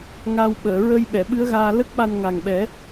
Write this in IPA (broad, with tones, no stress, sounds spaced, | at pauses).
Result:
ŋ a˧ w ɓ əː˨˩˨ ɹ ə˧ j ɓ ɛ˨˩˨ ɓ ɨ˧˥ ə̯ ɣ aː˧ l ə˦˥ k̚ ɓ a˧ n ŋ a˨˩ ŋ ɓ ɛ˨˩˦